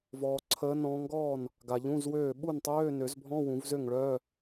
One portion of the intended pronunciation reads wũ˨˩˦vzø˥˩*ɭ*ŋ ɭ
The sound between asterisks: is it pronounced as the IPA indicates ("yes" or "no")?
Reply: no